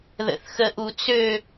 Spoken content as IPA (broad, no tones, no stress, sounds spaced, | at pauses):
ð ə̰ θ x ə ʔ u t͡s ø